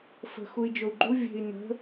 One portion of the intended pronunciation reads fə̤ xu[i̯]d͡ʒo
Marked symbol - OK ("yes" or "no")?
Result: yes